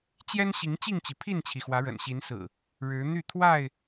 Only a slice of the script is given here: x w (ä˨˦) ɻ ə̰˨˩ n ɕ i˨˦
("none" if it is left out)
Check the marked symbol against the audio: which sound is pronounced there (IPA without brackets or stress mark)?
ä˨˦